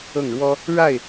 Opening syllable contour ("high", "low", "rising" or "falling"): falling